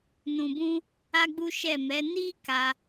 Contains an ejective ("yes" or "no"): no